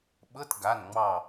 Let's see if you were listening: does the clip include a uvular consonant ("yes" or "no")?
no